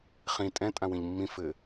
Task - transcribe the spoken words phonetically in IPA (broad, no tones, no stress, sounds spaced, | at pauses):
χ ĩ tʼ ɛ̃ tʼ ã w ĩ ʎ mː ĩ f ɘː